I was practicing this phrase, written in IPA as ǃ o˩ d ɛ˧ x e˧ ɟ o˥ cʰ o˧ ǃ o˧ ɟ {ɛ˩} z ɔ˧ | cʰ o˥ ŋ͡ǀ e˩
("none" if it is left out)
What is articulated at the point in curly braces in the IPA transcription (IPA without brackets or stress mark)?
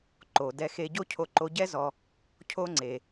ɛ˥